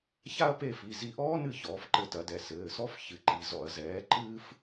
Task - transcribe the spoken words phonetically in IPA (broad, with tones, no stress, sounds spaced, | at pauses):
ç a˥ ɐ̯ p e˦˨ f i˩˧˩ z i˦˨ ʔ ɔː˥ n ɨ˦˨ ç ɔː˩˥ f ǃ ɘ˦˨ t ɐ˩˥ d ɛ˩˧˩ s ɘː˩˧˩ s ɔ˥ f ç ɨ˩˥ ǃ i˩˧˩ z ɔ̰˧˩˧ ɐ̯ z ɛː˩˥ ǃ ɨː˥ f